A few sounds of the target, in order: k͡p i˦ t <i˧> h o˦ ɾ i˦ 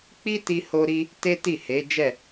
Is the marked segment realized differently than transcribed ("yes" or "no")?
yes